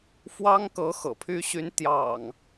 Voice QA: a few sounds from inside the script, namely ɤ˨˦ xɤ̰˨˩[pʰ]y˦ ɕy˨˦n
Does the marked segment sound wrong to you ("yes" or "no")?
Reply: no